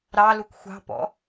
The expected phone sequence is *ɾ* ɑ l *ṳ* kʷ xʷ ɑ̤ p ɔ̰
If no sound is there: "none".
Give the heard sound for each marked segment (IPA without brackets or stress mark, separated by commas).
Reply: ɾ, u